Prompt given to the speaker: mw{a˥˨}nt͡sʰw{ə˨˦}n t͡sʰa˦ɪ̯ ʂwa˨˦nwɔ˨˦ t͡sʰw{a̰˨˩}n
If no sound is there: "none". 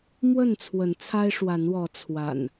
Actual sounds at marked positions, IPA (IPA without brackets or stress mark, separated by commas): ə˥˨, ə˨˦, a̰˨˩